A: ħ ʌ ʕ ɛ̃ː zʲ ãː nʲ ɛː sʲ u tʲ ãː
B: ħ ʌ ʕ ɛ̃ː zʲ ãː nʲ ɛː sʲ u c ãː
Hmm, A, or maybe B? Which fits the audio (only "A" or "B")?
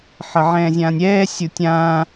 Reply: A